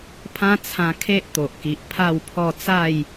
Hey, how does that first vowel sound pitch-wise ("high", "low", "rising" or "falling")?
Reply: high